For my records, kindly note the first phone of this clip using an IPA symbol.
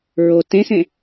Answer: ɹ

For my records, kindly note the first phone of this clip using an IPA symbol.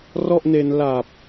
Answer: r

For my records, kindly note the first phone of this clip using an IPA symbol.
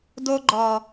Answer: d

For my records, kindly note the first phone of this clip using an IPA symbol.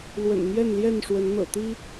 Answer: l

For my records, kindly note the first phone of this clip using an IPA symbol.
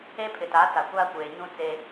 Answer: e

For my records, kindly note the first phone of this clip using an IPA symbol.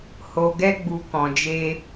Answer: h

